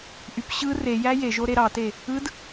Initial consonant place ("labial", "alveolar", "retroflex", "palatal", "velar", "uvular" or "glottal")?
glottal